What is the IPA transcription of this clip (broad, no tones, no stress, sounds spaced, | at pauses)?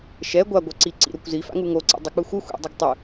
ʃ ɛ ɡʷ a ɡʷ ʌ ǀ i ǀ ḭ ɾ o kʷ z i f a̰ ŋ u ŋ o ǀ ḭ dˤ ɛ k͡p ɯ xʷ ɯ xʷ ḭ dˤ ʌ ɡ tˤ ɯ